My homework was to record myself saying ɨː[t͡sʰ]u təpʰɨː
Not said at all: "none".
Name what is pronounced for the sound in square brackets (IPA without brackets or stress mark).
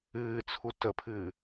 t͡sʰ